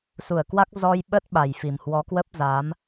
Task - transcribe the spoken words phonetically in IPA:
su˧˩ə̯kwa˦˥k̚ zɔ˧j ɓə˦˥t̚ ɓa˨˩jfi˨˩m hwɔ˨˦kwə˦˥p̚ za˨˦m

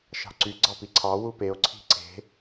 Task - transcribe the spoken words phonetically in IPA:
ʃɑ̤ǀy ɡ͡ǀɑpiǀʰɑ wupeo̯ ǀʰi̤ǀe̤

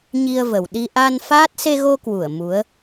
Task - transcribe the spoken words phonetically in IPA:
ɲi˧ə̯və˨˩wɗi˧ ʔa˧nfaː˦˥t̚ se˧ɣo˧kwu˧˩ə̯ mu˨˦ə̯

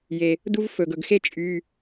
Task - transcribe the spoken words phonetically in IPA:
je˩ | du˥v fɵ˩ɡɵ˩ɡxe˥ t͡ʃʼy˩˧˩

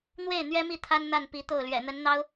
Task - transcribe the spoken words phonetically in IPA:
n̪we˥˩ɪ̯ n̪ɥɛ˥mi˥˩ t̪ʰa˥nn̪a˥˩npi˧˥t̪o˥˩ʊ̯ lɥɛ̰˨˩n̪ə˧˥nn̪ɑ˥ʊ̯

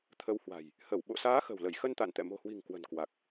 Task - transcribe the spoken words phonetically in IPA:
t̪ʰə˨˦whwa̤˨˩j | hə˧˩w ɓo̰˧˨saː˨˦ xə̤˨˩wlə˧˩jxə˧n t̪a̰˧˨nt̪ɛ̰˧˨ mo̤˨˩hwi̤˨˩ŋ kwə̤˨˩nkwa˨˩k̚

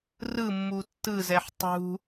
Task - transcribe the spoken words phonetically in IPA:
rɯmːu tːɯzɛħ tˤṳ

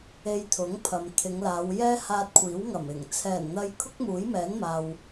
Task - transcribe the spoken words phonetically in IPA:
e˧jt̪ʰʊ˨˥ŋpʰɐ˨m t̪ʰɪ˨˧ŋlaː˨˧wjɛː˥haː˧t̚ kʷʰiː˨˥wŋɐ˨˩mɪ˨˩ŋ t͡sʰɛː˨˩nn̪ɐ˧j kʰʊ˥k̚muː˨˥jmɛː˨˥nmaː˨w

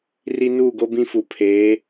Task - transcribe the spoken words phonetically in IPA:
ri˦ nuː˦˨ɡo˦ bĩ˦fu˨ pʰeː˨˦

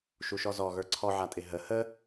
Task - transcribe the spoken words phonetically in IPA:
ʃuʃɔzɔ ɣə˞ǀʰɔʕatʼɪ ɦə hə

